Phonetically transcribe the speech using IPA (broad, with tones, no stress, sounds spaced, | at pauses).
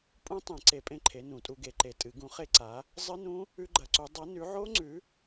pʼ ũ˦˥ tˤ ẽ˨˩˦ ǀ e˨˩˦ pʼ ẽ˦˥ ǃʰ e˨˥ n ũ˨˩˦ tʼ u˨˥ ɡ e˨˩˦ ǃ e˨˩˦ tʼ ɨ˨˩˦ ɡ ũ˨˥ χ e˦˥ ǀ a˨˥ | zˤ ɨ˦˥ n ũ˦˥ | ʉ˦˥ ɡ͡ǃ ɐ˨˥ ǀ u˨˥ dˤ ɐ˨˥ n ʉ˨˥ ʕ o˦˥ ŋ͡ǀ ʉ˨˥